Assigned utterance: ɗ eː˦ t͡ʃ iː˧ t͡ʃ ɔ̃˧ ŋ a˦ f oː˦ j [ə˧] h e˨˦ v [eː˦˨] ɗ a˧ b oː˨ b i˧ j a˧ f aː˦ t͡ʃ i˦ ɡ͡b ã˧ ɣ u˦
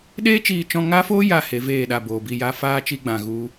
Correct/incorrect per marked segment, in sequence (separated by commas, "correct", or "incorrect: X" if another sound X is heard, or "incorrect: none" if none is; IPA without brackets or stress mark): incorrect: a˧, correct